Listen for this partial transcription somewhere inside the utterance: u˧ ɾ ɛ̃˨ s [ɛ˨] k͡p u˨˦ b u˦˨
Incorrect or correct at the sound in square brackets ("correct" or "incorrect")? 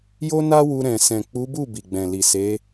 incorrect